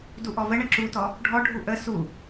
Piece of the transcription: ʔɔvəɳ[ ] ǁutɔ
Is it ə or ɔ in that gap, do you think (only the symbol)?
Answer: ə